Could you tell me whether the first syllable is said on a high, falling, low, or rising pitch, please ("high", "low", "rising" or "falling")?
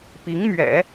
rising